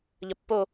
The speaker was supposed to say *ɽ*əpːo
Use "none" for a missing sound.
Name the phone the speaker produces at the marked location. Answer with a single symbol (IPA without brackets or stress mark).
ʎ